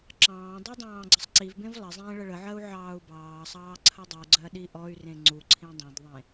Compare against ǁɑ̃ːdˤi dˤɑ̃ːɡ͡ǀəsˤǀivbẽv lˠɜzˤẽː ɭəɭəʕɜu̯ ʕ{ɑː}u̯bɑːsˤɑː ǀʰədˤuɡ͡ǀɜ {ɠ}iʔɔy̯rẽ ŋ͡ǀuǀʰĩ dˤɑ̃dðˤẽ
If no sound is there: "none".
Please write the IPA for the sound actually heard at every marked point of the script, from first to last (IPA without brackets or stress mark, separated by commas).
ɑː, ɗ